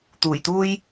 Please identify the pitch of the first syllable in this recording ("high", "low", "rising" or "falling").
low